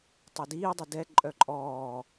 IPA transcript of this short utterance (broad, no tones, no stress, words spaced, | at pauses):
tˤodiːdˤo dɛ ǃʼœǃʼɔː